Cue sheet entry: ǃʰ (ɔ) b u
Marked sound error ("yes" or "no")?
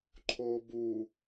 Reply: yes